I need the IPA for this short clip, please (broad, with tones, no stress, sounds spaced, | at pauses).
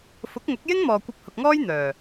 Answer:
f ʊ˨˥ k̚ ŋ ʊ˨˥ k̚ j ɪ˥ ŋ m ɔː˨ kʷ ɐ˧ p̚ h ʊ˨ k̚ ŋ ɔː˥ j n̪ œː˨˩